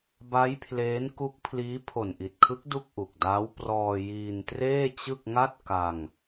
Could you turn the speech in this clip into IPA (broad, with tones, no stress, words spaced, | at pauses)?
ba˦˥jpʰleː˦˥n ku˦˥k̚pʰliː˦˥ pʰo˨˩nʔi˨˩t̚kʰɯ˦˥k̚ du˥˩k̚ʔu˨˩k̚daː˦˥w prɔː˧ jiː˧ntreː˥˩t͡ɕɯ˥˩k̚ ŋa˥˩t̚ ka˧ŋ